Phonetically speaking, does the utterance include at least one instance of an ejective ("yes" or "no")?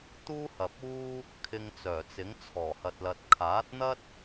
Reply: no